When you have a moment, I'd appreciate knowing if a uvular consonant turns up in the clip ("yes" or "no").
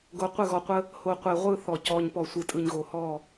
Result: yes